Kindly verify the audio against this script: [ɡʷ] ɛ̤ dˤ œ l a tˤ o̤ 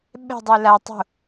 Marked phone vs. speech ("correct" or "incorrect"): incorrect